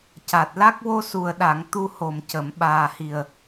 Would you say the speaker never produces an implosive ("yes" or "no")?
no